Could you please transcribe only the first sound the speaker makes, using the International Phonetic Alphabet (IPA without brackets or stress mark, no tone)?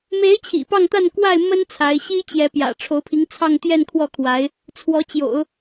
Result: m